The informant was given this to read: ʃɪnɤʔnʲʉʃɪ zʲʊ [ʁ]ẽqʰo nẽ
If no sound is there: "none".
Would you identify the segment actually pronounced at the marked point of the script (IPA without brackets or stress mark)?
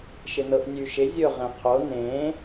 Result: ʁ